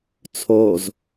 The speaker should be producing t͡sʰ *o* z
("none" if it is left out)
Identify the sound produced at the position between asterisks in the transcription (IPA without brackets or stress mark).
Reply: o